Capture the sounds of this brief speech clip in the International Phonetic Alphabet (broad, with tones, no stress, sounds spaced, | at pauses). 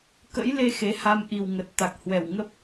k ə̰˧˥ j l e˧ x e˨˦ h a˧ m ʔ i˨˩ w ŋ ə˨˩ t̚ t̪ a˨˩ k̚ h w ɛ˧˩ w ŋ ə˦˥ p̚